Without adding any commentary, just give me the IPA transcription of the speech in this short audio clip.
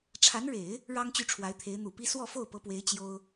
ʈ͡ʂʰa˧˥nɻe˨˩˦ɪ̯ | ɻɑ˥ŋt͡ɕy˥˩ʈ͡ʂʰwa˧˥ɪ̯t̪ʰe˧˥ɪ̯ n̪u˨˩pi˥ swɔ˥˧fo˥˩ʊ̯pɤ˧˥pwe˧˥ɪ̯ t͡ɕjo˥ʊ̯

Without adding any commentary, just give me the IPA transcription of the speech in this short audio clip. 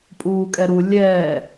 pʼuːkʼɛɾu lʲɛː

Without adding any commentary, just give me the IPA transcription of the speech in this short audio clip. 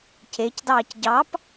cecdɑːc ɟɑp

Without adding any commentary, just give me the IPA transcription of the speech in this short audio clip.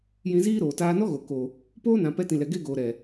jĩ˧ziː˦ɾoː˨ taː˧nɔ˦ɣo˨ ko˨ | poː˦nã˨ pɛ˧tĩ˨lɛ˨ ɡe˧ ɡoː˨ɾɛ˨

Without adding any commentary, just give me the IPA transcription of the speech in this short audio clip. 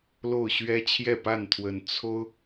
lo˥˨ʊ̯ɕɥɛ˦ t͡ɕʰjɛ˥˨pa˥˨nt̪ʰwə˨˩n t͡sʰo˦ʊ̯

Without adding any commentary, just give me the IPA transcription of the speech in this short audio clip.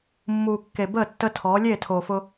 mːuː˨kːe˨bəː˦˨ tːə˦tʰɔː˨˦ lʲeː˦˨tʰoː˨fʊ˦

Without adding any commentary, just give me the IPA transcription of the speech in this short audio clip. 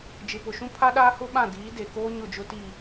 d͡ʒɪ˨pʊ˨ʃũ˦ pʰa˦ɗaː˦hʊ˦ɓã˦˨ diː˨˦ de˨koː˦ ɲʊ˦˨d͡ʒʊ˦ti˦˨

